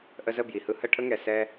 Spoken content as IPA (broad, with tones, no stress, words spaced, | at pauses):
ʔə˧zə˥˩bji˩hɯ˧ hə˥˩ʈʰə˥ŋɛ˩ sɛ˧